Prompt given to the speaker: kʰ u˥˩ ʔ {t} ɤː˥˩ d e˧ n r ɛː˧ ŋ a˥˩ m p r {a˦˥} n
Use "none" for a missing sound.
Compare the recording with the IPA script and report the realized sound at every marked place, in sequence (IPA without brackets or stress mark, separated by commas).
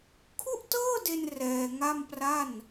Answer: t, a˥˩